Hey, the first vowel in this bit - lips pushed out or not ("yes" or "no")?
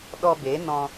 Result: yes